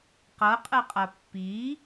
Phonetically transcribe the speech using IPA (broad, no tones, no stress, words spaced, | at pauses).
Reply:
qɤqʼɨqʼa pːi